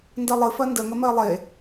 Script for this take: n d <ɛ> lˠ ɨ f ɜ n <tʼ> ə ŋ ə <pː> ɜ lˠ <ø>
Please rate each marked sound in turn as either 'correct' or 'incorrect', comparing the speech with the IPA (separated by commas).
incorrect, incorrect, incorrect, incorrect